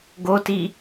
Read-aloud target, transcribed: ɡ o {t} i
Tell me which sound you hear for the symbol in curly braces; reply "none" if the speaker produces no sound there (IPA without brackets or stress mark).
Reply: t